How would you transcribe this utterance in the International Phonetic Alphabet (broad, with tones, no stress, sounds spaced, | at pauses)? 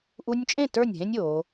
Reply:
ʔ u˦ nʲ t͡ʃʼ ẽ˦˨ t ə˞˦˨ nʲ ɦ ẽ˦ nʲ o˨˦